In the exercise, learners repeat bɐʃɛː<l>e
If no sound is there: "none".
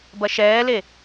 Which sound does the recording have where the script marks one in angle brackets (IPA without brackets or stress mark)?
l